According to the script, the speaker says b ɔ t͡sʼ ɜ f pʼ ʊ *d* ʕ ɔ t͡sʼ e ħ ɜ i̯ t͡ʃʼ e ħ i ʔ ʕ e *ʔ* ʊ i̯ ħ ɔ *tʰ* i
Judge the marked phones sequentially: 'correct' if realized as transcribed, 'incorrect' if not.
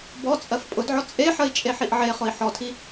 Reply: correct, incorrect, correct

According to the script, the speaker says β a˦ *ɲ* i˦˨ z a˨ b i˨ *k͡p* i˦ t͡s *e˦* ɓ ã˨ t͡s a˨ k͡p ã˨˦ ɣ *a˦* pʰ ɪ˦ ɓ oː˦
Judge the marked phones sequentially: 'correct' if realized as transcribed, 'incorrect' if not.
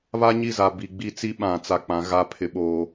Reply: correct, incorrect, incorrect, correct

